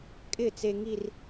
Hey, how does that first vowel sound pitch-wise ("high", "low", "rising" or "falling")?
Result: falling